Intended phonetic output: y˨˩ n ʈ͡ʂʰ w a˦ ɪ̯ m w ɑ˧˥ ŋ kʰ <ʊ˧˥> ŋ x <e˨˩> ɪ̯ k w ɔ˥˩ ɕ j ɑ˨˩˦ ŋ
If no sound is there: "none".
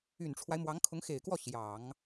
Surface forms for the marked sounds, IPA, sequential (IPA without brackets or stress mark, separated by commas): ʊ˧˥, e˨˩